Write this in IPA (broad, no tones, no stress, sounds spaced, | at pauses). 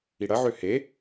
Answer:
i ɽ ɐ ʕ ø h e